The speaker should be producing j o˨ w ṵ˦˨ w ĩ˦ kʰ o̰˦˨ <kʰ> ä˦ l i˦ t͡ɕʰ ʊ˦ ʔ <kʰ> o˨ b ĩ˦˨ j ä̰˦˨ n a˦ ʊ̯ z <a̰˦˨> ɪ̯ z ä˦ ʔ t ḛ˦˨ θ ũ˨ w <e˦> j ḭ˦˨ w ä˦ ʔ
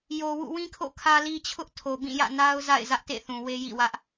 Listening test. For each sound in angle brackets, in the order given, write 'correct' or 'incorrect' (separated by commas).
correct, incorrect, correct, correct